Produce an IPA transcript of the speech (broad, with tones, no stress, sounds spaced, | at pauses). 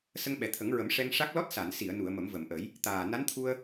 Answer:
s ə˧ ŋ ɓ ɛ˨˩ t̪ʰ ə˨˩˦ ŋ ɹ ə˨˩˦ m ʂ ɛ˧ ŋ ʂ a˦˥ k̚ l ɔ˦˥ t̚ s a˨˩˨ n s i˨˩˨ ə̯ n u˨˩˨ ə̯ m ə˨˩˦ m v ə˨˩˨ m ʔ ə˨˩˦ j | t̪ aː˨˩ n a˧˥ n t̪ʰ u˧ ə̯